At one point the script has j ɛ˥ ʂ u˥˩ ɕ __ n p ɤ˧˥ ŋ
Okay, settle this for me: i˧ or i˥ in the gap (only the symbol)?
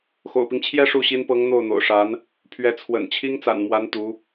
i˥